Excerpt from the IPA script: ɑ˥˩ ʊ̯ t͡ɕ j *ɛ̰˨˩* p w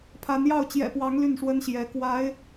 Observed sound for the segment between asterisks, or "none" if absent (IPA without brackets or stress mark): ɛ̰˨˩